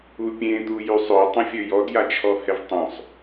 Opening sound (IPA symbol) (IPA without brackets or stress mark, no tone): u